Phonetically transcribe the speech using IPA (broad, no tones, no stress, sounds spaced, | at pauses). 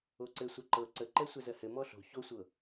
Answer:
o ǀ ɘ sʷ ɛ ǃ ɤ ǀ ə ǃ ɛ sʷ ɛ z ɜ h ɘ m ɔ ɬ o̤ ç o sʷ ɤ